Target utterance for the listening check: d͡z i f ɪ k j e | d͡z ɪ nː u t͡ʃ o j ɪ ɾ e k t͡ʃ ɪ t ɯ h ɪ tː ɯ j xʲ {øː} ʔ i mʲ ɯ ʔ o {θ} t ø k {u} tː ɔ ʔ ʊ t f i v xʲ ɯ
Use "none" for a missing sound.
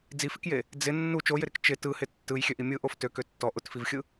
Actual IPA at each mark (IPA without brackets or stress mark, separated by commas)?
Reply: ø, f, ø